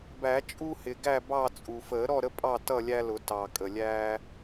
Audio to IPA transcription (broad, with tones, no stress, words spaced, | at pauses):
bæ˨˩˦t͡ʃʼu˦hɪ˨˩ ɡæ˥˨bɑ˥˨t͡sʼu˨˩ fəː˨˩˦ɾɔ˥˨ɾə˦ pʼɑ˥˨tʌ˥˨lʲæ˦lʊ˨˩˦ tɑ˨˩ kʼə˨˩lʲæː˦